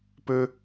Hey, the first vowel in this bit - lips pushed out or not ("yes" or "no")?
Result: yes